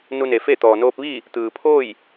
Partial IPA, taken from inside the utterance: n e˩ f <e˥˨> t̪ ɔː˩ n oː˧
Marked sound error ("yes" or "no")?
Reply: no